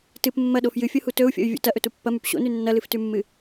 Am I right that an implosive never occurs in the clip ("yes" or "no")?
no